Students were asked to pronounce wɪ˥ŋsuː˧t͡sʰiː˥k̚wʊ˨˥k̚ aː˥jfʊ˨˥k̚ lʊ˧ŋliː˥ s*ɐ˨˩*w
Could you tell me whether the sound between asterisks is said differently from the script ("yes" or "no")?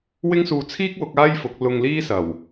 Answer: no